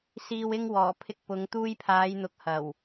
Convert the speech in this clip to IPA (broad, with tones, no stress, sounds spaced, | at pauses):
s iː˨ w ɪ˧ ŋ w ɔː˨˩ pʰ ɪ˧ k̚ p ʊ˨˧ ŋ t̪ uː˧ j pʰ aː˨˧ j n̪ ʊ˨ k̚ h ɐ˨˩ w